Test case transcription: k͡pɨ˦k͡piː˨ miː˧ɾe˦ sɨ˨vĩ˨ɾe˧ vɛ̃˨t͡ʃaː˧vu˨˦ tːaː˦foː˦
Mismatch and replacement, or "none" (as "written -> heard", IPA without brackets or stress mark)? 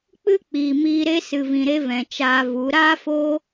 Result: tː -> ɾ